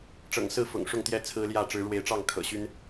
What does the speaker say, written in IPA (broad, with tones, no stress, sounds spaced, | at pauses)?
ʈ͡ʂ ɤ̰˨˩ ŋ s ɹ̩˥˨ f ʊ̰˨˩ ŋ ʂ ʊ˥˨ ŋ t̪ j ɛ˥˨ t͡sʰ ɹ̩˦ l j ä˥˨ ʈ͡ʂ ɻ̩˨˦ ɻ w e˨˦ ɪ̯ ʈ͡ʂ ɑ˥˨ ŋ kʰ ɤ̰˨˩ ɕ y˦ n